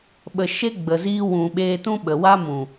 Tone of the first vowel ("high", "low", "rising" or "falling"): low